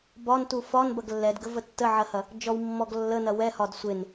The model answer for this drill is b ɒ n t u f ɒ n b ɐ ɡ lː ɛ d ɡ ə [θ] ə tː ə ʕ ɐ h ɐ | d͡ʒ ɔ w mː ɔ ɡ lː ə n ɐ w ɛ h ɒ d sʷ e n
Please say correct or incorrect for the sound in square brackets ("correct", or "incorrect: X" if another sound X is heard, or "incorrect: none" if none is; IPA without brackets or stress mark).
incorrect: v